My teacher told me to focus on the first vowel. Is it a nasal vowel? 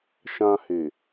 yes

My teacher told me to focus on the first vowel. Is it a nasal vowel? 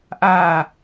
no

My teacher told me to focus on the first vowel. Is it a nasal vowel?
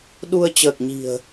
no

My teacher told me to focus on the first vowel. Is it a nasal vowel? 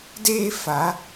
no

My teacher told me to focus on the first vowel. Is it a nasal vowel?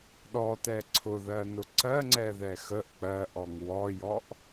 no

